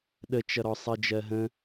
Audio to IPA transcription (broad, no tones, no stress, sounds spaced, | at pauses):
ɗ ə t͡ʃ ʌ ɾ ɔ sˤ ɜ d͡ʒ ɜ ɦ ə̃